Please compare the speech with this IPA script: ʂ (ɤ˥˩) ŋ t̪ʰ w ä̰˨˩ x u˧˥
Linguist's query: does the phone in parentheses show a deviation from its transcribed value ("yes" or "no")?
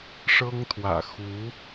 yes